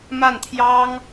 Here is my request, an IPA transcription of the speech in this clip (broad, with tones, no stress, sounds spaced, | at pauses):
m a˥˩ n t̪ʰ j ɑ˥ ŋ